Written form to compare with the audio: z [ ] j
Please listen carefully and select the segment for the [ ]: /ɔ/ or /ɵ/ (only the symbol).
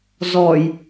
ɔ